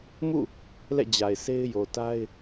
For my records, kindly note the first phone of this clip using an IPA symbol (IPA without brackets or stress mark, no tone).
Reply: m